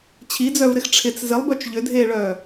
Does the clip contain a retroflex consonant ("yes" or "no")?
yes